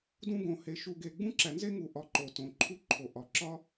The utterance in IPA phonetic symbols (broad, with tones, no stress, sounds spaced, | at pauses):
d ũ˦ ɡ õ˩ h e˨ ʃ u˨ ɡ e˨ ɡ͡b ũ˥ ǁ æ˨ n z e˥ ŋ u˨ ʔ ɒ˨ ǃ o˩ t õ˩ ǃʰ u˦ ǃʰ o˩ ʔ ɒ˩ ǁ ɒ˥